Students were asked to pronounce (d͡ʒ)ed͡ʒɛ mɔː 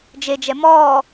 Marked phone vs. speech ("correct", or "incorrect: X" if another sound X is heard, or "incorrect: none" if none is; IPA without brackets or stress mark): correct